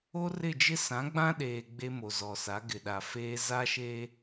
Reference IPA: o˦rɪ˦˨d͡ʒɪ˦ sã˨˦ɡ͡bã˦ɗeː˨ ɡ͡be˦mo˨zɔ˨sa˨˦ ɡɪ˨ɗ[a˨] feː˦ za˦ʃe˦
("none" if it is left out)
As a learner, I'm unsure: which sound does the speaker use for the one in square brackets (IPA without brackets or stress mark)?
a˨